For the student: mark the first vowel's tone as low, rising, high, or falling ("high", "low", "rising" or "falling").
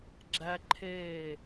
high